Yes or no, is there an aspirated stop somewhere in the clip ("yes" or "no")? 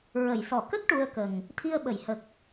yes